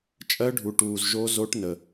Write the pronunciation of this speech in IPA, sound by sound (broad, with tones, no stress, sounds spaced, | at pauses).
t͡ʃʼ ɜ˧˥ ɖʱ u˩ ʈ uː˩ z ʒ o˧˥ z o˧˥ ʈ n ə˩